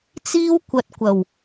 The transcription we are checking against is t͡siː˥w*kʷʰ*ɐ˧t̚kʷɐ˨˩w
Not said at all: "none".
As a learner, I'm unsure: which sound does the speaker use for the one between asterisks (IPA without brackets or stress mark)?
kʷ